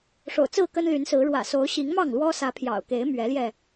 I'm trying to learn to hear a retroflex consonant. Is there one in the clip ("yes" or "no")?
yes